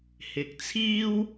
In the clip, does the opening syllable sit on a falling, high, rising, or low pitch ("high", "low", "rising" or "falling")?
low